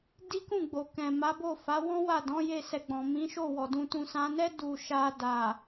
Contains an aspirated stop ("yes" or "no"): no